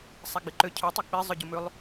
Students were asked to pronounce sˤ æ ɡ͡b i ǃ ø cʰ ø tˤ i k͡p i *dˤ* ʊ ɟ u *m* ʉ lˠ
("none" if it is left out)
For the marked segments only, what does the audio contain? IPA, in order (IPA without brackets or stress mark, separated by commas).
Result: zˤ, m